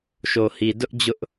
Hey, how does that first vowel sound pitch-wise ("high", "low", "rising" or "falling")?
low